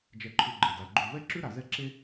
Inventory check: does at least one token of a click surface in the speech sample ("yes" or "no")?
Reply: yes